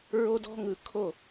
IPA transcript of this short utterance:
ɹ o˦ d ɔ̤˦ ŋ ɯ˨ kʰ o˦˨

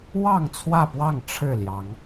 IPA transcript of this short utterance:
w ɑ˥˨ ŋ t͡sʰ w ä˥˨ p w ɑ˥˨ ŋ ʈ͡ʂʰ ɻ̩˥˨ l j ɑ˨˦ ŋ

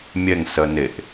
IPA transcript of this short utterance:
mʲ ɛ ŋ s ɜ n e ʔ

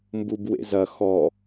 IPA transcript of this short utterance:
m b u b w ḛ z ɐ x ɔ

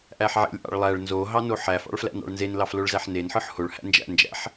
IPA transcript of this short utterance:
ʔ æ ħ ʕ ḛ lʲ ʔ ɑ̰ ɭ lˠ æ ɭ n z o ɦ ɑ n o ħ æ f ɑ̰ ɭ f l æ̰ n ɑ̰ ɭ n z e n l ɑ f l o ɭ z æ ħ n e n ħ ɯ ħ h o ɭ h æ̰ n d͡ʒ æ̰ n d͡ʒ æ̰ ħ

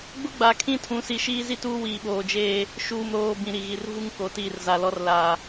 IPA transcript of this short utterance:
ɡ͡b ʊ˦ ɡ͡b aː˨ kʰ ĩ˦ tʰ ũ˨˦ s i˨ ʃ iː˦ z i˦ t uː˦ w iː˨ ɓ oː˨ d͡ʒ eː˦ | ʃ uː˨ m ɾ oː˨ b ĩ˨ ɾ i˨ ɣ i˨ r v u˦ ŋ k o˨ t iː˦˨ r z a˨ l ɔ˦ r l a˨

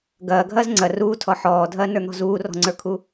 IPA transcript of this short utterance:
ɡ ɐː ɡʱ ɐː z ŋ͡ǀ ɐ r uː tʰ ɔ ħ ɔː dʱ ɐː n ə˞ n̪ ɔ̤ z uː r ɔ̤ ŋ͡ǀ ə˞ kʰ u

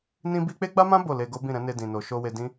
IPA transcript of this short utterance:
n ĩ˦ b i˦ k͡p e˦ ɡ͡b a˦ m ã˦ b o˦˨ l e˧ ɡ o˦ b ĩ˦˨ ɾ ɛ̃˨˦ n e˧ d ĩ˨ n o˨ ʃ o˧ w e˧ d ĩ˦

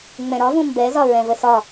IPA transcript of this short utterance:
ŋ͡m ɛ̃ ɾ ɒ v ũ m b ɛ z ɒ ɹ ɛ̃ v ə s ɒ

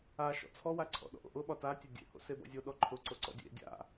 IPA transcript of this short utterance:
a ʃ ɔ̰ t͡sʰ ɔ w a ǀʰ ɔ̰ ɗ ɔ̰ ʔ o̰ ʔ ʊ ɓ ɒ t a tʲ e dʲ ḛ h o̰ s e b ɔ̰ zʲ o ɗ ɔ ǃʰ ʊ ǀ o ǀ ɔ̰ dʲ ḛ dʲ a̰

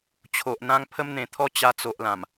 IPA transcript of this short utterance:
t͡ɕʰ o˨ ʔ n̪ ã˦ ŋ pʰ ə˦ m n̪ ẽ˨˩ t̪ʰ ɔ˦ t͡ɕ a˧ t͡s o˨ ʔ l ã˨˩ m

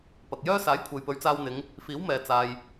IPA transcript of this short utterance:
p ɐ˨ k̚ j œː˥ s aː˨˥ j kʷʰ e˨ j p ɵ˨˥ ɥ t͡s aː˧ w n̪ ɪ˨˧ ŋ | f iː˨˥ w m ɛː˨ t͡s aː˨ j

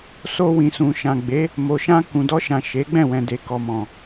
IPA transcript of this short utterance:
s o˧ w ĩ˨ s ũ˨ ʃ ã˨ ɡ͡b e˨˦ | m o˨ ʃ ã˧ k ũ˨ d ɔ˧ ʃ ã˨ ʃ e˨˦ ɡ͡b ɛ̃˦˨ w ɛ̃˨ d e˨ k ɔ˨ m ɔ̃˨

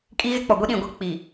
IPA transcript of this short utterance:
kʼ i˦ ɣ ɪ˦ k͡p ɔ˨ ɡʷ i˦ ɗ ĩ˨ ɡʷ ɛ˦ k͡p i˨

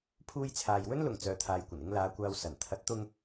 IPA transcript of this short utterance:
pʰ uː˧ j t͡sʰ aː˨ j w ɵ˥ n l ʊ˨˩ ŋ t͡s œː˨ t̪ʰ aː˨ j kʷ ɐ˨˩ n ɪ˧ ŋ l aː˨˧ kʷ aː˧ w s ɐ˨˩ n t̪ʰ ɐ˨˥ t̚ t̪ ʊ˧ ŋ

